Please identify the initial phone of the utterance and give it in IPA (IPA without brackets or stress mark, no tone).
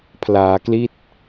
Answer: pʰ